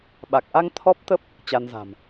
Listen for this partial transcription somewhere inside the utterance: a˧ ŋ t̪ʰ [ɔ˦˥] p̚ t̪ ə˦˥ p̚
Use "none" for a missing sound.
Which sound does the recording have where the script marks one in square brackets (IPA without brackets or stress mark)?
ɔ˦˥